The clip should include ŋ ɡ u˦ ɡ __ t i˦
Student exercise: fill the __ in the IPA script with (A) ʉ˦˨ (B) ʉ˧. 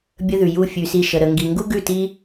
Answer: A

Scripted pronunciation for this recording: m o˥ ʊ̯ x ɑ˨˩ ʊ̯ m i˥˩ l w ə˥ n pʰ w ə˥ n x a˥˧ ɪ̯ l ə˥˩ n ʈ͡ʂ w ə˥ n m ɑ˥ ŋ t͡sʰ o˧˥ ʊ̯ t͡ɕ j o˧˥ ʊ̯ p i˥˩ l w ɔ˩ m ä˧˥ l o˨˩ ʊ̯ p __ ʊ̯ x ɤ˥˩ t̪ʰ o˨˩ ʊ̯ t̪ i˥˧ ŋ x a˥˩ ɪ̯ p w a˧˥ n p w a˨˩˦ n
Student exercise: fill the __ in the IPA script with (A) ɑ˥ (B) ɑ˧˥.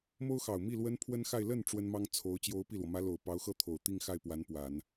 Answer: B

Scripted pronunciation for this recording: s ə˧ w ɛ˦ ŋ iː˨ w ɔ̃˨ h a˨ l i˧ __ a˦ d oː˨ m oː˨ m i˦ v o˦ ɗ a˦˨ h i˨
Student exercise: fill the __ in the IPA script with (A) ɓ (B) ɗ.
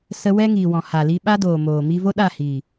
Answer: A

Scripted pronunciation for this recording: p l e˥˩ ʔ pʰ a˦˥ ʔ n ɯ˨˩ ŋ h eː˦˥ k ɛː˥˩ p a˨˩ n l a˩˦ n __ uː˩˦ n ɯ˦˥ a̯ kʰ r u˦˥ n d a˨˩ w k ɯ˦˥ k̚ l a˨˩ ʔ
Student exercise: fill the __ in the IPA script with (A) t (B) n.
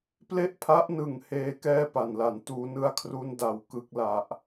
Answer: A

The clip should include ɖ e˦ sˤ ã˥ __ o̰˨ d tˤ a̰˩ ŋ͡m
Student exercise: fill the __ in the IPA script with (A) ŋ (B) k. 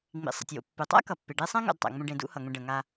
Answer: A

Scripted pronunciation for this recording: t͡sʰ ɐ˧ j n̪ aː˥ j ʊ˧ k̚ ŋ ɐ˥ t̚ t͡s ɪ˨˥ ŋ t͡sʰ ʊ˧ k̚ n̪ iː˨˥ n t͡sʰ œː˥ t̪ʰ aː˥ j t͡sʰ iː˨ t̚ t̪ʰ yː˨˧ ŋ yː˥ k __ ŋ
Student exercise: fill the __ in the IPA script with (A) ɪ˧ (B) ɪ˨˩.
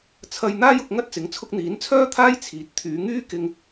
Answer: A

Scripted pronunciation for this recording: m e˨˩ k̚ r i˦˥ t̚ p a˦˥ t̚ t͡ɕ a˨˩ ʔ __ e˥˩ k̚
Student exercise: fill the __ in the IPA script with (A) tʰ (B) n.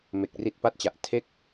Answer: A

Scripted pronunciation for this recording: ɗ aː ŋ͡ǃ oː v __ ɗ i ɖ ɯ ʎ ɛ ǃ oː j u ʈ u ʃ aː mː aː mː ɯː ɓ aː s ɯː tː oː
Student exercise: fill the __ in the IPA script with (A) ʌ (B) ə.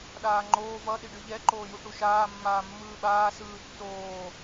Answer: A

